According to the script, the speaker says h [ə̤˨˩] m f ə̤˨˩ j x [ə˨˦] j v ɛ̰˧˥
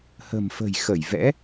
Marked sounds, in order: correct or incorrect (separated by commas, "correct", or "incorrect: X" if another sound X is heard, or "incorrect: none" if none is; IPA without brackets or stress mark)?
correct, incorrect: ə˧˩